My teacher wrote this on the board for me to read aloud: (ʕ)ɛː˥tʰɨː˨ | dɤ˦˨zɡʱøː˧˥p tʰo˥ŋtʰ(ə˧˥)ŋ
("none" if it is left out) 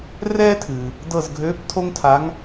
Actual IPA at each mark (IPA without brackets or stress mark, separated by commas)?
r, a˧˥